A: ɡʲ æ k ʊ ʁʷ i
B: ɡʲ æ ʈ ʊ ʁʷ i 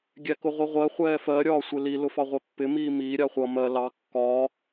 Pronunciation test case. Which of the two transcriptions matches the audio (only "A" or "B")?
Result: A